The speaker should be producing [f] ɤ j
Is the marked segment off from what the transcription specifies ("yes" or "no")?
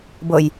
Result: yes